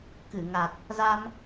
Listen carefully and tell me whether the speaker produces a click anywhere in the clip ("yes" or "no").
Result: no